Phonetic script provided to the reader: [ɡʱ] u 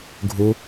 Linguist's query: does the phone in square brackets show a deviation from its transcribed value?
no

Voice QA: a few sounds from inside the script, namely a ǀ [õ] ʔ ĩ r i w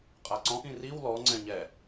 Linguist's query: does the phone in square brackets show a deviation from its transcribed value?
yes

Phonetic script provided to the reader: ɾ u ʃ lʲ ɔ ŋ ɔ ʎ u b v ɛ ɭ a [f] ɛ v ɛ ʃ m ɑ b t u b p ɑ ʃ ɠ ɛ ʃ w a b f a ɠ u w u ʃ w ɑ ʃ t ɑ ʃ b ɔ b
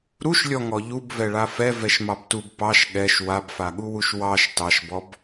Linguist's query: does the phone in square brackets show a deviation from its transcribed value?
no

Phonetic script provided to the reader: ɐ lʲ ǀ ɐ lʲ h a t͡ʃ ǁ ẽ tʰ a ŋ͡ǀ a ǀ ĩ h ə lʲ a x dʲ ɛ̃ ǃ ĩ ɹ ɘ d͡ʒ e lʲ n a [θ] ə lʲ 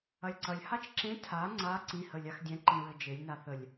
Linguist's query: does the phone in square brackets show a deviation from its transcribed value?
no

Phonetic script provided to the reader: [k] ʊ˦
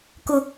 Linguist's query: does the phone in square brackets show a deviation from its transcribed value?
no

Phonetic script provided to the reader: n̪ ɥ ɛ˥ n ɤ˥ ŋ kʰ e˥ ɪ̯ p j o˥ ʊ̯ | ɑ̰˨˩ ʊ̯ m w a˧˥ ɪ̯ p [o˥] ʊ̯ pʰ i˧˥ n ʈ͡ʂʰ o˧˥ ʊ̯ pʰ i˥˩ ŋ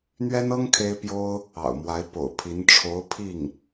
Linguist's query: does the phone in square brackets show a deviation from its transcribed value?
yes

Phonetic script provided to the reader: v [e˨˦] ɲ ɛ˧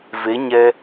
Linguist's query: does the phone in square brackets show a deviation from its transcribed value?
no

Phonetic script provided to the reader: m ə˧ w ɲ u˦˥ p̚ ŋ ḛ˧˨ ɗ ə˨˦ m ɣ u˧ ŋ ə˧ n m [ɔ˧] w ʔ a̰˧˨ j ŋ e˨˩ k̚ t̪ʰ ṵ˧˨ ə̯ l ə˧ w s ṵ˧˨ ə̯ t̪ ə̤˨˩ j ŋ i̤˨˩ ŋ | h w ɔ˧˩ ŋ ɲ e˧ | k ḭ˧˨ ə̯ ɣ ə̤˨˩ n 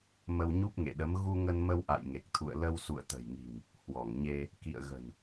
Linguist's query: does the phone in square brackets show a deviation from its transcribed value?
yes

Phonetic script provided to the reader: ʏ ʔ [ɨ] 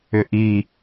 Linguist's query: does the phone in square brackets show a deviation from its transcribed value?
yes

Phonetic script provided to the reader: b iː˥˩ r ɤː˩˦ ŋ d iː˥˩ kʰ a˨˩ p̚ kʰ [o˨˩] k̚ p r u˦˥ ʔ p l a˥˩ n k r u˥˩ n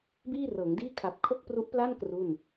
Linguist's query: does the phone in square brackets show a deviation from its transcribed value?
yes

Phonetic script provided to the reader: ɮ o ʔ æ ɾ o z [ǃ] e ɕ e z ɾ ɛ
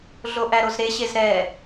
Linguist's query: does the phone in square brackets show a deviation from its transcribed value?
yes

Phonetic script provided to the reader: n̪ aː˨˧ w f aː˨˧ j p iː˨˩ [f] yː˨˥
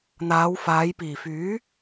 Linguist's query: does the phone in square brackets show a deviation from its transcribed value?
no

